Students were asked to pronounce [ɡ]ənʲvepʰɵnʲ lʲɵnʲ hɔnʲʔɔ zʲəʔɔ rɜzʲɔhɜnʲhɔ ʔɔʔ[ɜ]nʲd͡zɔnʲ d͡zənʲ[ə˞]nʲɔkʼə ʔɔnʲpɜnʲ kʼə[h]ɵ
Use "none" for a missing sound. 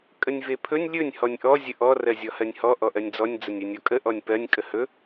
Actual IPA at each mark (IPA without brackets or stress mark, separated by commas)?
kʼ, ɜ, ɜ, h